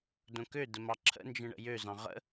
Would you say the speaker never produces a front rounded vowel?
no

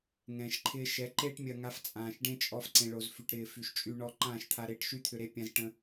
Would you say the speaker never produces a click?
no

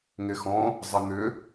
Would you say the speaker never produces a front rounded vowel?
no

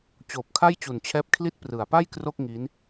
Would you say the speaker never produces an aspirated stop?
no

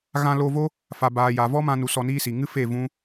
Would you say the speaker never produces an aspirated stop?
yes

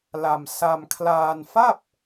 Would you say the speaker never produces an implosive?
yes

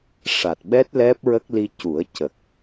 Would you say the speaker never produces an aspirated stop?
yes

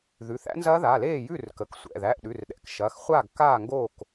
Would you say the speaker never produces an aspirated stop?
yes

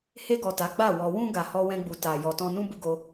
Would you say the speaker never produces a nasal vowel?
no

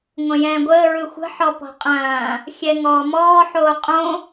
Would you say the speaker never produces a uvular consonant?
no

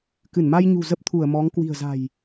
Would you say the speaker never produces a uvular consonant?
yes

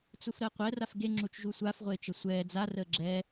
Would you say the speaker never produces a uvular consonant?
no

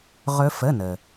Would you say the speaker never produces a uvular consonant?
no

